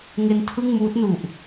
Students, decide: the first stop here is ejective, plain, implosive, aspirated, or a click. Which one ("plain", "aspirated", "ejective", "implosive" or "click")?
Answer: aspirated